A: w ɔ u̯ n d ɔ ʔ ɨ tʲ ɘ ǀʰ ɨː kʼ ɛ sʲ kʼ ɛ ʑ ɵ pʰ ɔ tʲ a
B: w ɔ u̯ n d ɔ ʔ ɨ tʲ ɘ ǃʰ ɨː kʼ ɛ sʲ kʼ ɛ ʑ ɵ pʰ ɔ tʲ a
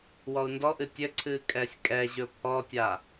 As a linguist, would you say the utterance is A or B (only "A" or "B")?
A